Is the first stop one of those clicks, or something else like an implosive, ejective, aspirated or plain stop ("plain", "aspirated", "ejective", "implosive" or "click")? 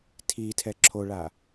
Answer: aspirated